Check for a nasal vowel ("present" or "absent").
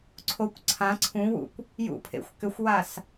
present